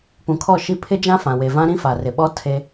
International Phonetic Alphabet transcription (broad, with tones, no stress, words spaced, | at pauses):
pũ˨kʰɔ˦˨ʃi˦ pʰɪ˦d͡ʒã˦ fã˨we˨vã˦ɾĩ˦ fa˨rɪ˨ɓɔ˦ tʰe˦